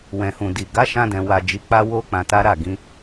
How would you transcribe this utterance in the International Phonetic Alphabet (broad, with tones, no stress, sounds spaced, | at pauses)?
w ɛ̃˨ h ũ˨ d i˨ ɡ a˨˦ ʃ ã˧ d ɛ̃˨ w a˨ d͡ʒ i˨ k͡p a˧ w o˧ k͡p ã˧ t a˦ ɾ a˦˨ ɡ ĩ˨˦